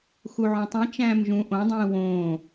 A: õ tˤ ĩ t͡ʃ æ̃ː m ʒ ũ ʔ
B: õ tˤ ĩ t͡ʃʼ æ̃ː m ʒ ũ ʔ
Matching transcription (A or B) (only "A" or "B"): A